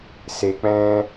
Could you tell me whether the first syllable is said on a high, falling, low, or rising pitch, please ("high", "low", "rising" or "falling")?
low